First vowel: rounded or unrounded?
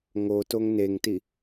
rounded